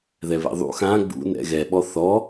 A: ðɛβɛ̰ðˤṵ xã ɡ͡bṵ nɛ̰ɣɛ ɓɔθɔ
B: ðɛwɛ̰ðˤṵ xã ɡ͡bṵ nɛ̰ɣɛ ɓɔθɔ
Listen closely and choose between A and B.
A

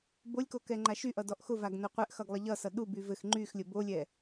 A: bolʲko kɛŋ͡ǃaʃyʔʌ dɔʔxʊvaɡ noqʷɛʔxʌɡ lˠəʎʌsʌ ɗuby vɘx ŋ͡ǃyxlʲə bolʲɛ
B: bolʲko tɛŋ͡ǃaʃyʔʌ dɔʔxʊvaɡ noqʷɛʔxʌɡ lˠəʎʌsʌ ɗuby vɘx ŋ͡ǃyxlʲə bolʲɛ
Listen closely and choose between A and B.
A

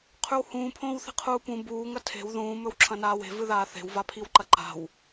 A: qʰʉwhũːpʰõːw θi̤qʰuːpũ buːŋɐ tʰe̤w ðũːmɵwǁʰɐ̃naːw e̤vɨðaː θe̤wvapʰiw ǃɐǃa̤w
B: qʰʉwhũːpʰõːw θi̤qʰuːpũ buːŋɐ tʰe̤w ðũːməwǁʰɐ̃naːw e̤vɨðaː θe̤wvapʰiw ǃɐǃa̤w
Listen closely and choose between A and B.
A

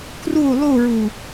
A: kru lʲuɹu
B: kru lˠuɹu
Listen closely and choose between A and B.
B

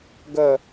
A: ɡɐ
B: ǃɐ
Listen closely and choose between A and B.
A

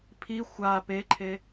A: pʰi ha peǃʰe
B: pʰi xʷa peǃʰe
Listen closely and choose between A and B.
B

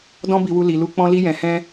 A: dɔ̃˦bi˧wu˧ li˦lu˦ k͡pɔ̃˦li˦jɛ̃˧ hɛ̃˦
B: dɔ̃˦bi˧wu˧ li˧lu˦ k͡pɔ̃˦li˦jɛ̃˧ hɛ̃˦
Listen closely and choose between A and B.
B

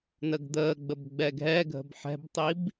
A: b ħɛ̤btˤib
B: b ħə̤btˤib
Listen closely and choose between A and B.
A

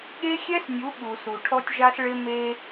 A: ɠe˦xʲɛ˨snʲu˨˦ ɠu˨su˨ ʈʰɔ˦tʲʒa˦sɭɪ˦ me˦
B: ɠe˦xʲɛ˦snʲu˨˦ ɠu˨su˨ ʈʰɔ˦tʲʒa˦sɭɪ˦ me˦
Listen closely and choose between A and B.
B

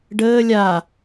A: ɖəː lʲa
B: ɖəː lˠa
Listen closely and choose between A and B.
A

